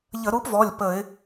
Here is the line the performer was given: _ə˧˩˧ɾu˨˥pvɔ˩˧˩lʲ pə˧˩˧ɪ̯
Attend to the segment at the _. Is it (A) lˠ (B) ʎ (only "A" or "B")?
B